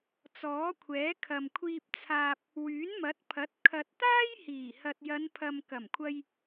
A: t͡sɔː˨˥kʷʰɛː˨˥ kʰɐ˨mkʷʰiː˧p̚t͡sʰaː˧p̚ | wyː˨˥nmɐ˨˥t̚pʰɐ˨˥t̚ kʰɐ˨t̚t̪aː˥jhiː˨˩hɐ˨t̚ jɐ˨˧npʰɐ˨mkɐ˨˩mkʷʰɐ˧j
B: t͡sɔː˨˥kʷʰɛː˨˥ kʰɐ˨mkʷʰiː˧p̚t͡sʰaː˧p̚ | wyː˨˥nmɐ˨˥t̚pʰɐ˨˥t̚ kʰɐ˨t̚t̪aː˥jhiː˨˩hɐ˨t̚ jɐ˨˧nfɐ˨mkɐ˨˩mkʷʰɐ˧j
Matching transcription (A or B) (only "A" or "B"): A